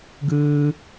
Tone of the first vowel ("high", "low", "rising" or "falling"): high